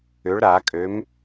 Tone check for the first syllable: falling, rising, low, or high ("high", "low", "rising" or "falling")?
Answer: rising